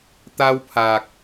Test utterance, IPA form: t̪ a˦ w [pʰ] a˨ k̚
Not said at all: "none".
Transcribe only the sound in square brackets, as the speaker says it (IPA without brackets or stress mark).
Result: pʰ